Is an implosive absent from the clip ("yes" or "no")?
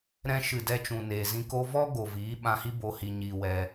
no